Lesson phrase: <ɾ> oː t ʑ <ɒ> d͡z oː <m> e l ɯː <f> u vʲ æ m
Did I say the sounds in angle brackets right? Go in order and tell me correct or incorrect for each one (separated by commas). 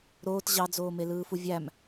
correct, incorrect, correct, correct